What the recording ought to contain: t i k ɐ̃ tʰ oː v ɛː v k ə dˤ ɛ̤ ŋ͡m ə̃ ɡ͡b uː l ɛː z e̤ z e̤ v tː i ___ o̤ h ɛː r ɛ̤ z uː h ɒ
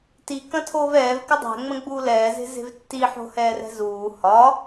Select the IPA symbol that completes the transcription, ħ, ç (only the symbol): ħ